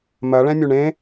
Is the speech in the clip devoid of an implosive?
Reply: yes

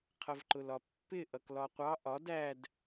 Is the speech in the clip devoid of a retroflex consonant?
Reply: yes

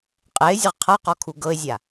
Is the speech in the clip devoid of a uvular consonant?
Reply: no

